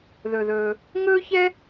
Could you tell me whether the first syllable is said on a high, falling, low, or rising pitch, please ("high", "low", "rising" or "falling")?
low